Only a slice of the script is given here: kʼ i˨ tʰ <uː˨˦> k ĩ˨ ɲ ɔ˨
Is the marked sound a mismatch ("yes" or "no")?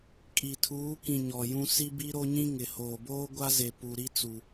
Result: no